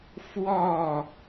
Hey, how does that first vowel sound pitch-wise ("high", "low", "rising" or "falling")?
falling